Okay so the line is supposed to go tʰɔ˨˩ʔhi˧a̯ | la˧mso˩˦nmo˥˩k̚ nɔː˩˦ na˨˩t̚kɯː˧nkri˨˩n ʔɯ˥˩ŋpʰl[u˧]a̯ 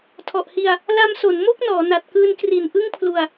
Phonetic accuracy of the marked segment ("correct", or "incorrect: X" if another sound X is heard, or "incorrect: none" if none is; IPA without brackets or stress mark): correct